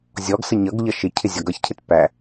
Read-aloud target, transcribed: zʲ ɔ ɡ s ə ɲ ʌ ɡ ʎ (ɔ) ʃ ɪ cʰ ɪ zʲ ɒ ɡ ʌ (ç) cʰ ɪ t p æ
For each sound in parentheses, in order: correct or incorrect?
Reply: incorrect, correct

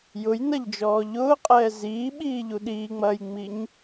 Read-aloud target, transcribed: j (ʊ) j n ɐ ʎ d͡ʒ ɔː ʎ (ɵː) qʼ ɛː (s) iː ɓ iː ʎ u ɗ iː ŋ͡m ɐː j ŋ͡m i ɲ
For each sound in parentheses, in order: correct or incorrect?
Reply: correct, incorrect, incorrect

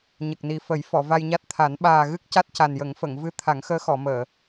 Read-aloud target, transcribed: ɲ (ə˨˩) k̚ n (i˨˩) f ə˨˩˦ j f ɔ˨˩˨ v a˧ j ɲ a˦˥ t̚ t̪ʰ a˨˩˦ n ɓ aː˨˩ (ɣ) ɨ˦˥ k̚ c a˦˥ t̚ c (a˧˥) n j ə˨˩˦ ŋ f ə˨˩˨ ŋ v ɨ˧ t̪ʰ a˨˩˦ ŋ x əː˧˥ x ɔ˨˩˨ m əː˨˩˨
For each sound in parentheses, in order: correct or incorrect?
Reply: correct, correct, correct, incorrect

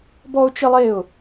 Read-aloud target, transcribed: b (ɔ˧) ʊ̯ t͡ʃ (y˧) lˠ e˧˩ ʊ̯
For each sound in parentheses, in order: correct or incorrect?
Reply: correct, incorrect

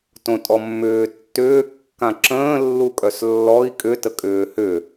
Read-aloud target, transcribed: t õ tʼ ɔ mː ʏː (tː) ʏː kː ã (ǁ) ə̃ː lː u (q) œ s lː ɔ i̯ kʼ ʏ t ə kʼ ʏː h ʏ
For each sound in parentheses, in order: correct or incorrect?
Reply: correct, correct, incorrect

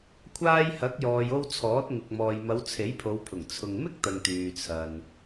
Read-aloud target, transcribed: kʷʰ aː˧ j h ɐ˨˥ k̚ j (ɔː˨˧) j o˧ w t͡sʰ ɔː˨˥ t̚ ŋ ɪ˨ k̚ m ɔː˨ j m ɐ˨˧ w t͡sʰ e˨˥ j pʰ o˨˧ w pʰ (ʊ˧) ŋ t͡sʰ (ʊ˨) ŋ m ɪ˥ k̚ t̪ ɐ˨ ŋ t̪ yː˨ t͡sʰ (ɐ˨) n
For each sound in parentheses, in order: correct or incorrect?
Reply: incorrect, incorrect, correct, correct

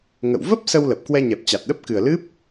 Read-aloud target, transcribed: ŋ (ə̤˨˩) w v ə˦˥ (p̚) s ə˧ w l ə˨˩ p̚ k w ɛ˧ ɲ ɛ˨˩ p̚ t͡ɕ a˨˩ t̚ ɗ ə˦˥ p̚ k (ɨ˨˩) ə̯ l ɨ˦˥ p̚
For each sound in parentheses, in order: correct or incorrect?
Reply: incorrect, correct, correct

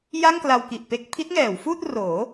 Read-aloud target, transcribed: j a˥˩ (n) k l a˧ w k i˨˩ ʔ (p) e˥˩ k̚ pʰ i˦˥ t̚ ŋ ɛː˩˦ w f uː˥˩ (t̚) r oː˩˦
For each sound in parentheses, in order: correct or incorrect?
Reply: incorrect, correct, correct

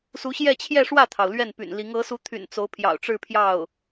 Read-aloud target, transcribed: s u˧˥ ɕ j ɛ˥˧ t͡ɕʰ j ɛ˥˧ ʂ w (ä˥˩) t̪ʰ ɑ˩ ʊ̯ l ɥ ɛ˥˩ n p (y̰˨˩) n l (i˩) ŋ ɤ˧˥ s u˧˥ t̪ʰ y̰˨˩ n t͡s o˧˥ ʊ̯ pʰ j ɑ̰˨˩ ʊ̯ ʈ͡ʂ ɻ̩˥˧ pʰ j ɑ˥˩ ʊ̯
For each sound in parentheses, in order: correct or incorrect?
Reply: correct, correct, incorrect

